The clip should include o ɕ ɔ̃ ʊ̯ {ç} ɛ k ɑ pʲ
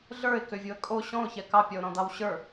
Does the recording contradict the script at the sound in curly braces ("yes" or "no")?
no